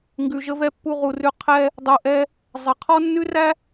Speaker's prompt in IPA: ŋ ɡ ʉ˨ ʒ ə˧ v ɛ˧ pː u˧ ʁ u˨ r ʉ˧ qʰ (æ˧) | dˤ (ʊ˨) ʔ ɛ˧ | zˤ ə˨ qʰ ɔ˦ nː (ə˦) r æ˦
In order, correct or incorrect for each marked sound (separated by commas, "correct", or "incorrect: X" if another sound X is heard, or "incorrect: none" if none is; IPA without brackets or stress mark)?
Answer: incorrect: ɛ˧, incorrect: u˨, incorrect: ʉ˦